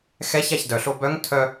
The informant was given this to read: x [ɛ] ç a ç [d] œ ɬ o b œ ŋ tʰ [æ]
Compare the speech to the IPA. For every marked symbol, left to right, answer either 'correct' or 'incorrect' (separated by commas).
correct, correct, incorrect